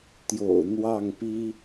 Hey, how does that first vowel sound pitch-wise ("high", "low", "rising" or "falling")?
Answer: low